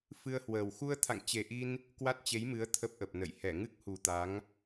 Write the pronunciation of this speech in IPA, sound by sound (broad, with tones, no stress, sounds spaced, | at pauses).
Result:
f ɨ˧ ə̯ h w əː˨˩ w x u˧ ə̯ t̪ʰ a̰˧˨ ŋ t͡ɕ e˨˩ ʔ i˧ n | k w a˦˥ t̚ t͡ɕ e˨˦ j m ɨ˨˦ ə̯ t̪ʰ ə˦˥ p̚ ʔ ə˨˩ p̚ n ə̰˧˨ j h ɛ˧˩ ŋ ɨ˦˥ k̚ h u˨˩ t̪ a˨˦ ŋ